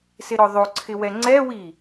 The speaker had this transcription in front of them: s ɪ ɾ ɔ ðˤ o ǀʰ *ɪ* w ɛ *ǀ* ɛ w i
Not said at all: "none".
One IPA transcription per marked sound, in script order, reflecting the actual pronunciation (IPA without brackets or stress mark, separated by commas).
ɪ, ŋ͡ǀ